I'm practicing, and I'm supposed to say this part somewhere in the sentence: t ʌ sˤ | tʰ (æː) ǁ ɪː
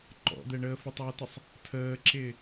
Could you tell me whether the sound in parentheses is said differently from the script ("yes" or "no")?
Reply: yes